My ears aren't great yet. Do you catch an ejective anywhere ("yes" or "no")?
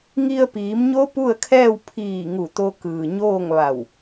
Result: no